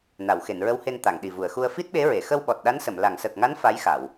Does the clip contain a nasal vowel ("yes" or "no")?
no